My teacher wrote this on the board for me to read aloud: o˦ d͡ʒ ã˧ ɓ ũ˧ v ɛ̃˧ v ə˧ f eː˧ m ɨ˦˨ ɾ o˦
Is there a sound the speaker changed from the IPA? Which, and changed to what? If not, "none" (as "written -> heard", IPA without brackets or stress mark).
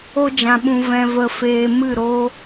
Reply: none